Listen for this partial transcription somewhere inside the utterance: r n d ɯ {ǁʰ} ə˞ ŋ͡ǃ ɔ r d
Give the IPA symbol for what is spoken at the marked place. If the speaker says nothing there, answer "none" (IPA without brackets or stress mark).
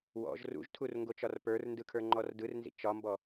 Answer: kʰ